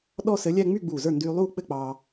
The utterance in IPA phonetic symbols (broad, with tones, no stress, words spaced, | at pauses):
ɗɔ˥˧sɘ˧˥ lʲɛ˥˧ ŋ͡my˥˧ɡ͡buː˧˩zə˞˥˩ ndyː˧ lˠuː˥˧k͡pɘ˥˧k͡pɑː˧